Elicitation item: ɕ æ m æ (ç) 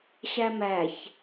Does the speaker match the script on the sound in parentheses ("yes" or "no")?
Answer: yes